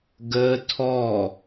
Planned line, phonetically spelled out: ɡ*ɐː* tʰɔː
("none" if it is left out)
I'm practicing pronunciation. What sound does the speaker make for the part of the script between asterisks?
əː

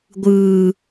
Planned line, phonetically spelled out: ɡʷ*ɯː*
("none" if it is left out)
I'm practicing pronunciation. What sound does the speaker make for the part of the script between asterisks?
ɯː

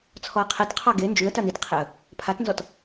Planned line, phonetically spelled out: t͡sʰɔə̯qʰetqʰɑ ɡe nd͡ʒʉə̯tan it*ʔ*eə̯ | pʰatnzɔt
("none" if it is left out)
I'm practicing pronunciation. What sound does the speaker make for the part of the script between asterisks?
qʰ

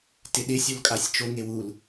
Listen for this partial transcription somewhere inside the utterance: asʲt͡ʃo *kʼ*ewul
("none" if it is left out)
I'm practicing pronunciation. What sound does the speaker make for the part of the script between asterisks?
ŋ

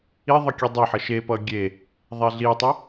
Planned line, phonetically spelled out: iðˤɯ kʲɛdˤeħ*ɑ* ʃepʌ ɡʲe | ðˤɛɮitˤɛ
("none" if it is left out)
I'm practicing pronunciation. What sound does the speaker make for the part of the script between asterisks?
ʌ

